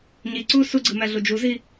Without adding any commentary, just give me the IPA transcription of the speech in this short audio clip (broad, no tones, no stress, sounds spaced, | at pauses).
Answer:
ɲ i ǀ u s u ɡ͡ǀ ɯ m æ ɮ u d͡ʒ u z i